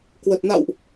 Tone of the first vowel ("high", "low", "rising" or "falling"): low